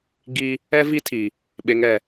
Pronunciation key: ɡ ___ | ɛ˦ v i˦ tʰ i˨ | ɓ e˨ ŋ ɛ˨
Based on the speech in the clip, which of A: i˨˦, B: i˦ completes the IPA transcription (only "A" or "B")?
B